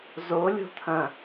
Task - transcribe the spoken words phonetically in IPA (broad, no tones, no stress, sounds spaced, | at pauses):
z o lʲ o̤ t̪ʰ ɐ̃